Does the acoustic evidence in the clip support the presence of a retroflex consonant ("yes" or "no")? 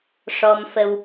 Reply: yes